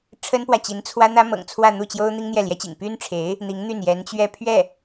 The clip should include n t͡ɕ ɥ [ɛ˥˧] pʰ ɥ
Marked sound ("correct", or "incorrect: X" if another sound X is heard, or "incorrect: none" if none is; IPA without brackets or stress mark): correct